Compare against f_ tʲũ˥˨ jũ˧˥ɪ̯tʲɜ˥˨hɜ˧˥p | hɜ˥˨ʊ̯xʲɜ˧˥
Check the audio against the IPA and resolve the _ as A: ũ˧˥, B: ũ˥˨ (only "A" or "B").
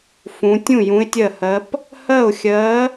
A